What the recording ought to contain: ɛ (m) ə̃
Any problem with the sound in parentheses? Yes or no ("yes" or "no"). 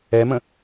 no